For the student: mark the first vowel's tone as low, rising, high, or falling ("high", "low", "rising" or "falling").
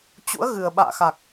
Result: rising